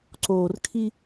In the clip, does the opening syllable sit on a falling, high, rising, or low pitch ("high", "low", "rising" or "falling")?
low